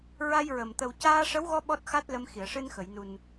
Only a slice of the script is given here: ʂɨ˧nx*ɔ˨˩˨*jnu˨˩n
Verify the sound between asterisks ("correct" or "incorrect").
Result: incorrect